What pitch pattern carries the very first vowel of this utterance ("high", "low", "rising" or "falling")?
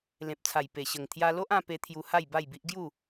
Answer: low